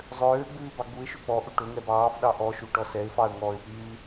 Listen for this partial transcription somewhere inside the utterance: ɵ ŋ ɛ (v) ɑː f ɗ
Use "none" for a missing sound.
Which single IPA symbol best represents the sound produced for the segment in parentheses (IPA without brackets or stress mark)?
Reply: b